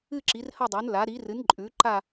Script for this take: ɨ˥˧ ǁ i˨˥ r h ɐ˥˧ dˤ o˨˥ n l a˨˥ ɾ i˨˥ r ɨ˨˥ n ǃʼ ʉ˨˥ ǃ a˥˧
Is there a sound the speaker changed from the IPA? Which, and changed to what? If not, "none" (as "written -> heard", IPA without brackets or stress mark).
none